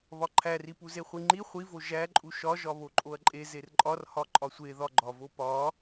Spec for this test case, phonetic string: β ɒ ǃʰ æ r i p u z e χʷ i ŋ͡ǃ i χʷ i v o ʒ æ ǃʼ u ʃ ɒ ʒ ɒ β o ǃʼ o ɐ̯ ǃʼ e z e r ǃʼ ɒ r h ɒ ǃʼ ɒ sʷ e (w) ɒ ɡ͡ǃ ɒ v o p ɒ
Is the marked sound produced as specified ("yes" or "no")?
no